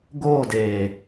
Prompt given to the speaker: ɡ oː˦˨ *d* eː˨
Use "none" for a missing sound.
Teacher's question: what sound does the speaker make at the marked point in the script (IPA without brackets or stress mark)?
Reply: d